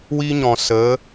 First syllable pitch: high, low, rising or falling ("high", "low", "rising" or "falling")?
high